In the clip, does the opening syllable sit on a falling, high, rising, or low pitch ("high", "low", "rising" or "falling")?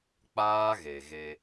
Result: high